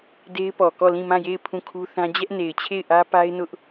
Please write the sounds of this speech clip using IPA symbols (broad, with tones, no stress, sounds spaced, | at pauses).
d e˦ ɪ̯ p ɔ˨ k ɔ˦˨ l ĩ˦˨ m ã˦˨ j e˦˨ ɪ̯ pʰ ũ˦˨ kʰ u˦ θ ã˦ d͡ʑ ɛ˦ ʔ n e˨ ɪ̯ t͡ɕʰ e˦˨ ɪ̯ ʔ ä˦ p a˦ ɪ̯ n ʊ˦ ʔ